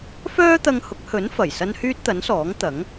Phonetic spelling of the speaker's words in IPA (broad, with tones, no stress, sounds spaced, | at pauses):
f œː˥ t̪ ɐ˧ ŋ h ʊ˨˥ k̚ h ɵ˨˥ n f ɐ˨˩ j s ɐ˥ n h yː˥ t̚ t̪ ɐ˨˥ n s ɔː˨˥ ŋ t̪ ɐ˨˥ ŋ